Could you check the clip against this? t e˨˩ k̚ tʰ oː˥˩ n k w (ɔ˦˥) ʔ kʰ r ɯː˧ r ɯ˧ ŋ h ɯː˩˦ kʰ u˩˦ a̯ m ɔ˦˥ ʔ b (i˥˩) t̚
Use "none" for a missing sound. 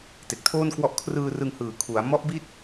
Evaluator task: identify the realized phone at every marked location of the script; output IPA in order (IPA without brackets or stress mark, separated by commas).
ɔ˦˥, i˥˩